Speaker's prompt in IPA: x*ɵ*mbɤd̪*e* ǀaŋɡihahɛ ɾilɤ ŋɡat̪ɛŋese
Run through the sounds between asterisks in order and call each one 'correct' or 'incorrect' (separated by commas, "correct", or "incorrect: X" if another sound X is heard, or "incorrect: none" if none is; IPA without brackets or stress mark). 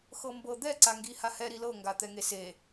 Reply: incorrect: ɤ, incorrect: ɛ